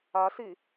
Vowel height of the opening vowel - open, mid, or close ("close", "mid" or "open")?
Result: open